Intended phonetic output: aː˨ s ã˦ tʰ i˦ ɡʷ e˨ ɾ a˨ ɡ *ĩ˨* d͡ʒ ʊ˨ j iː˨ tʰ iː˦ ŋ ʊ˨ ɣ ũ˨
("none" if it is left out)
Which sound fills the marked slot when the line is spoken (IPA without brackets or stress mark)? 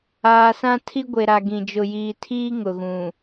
ĩ˨